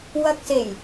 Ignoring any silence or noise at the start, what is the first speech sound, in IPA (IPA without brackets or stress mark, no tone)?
w